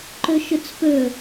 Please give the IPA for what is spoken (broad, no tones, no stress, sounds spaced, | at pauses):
ǃ ɵ ʃ ʊ t͡s p ɵ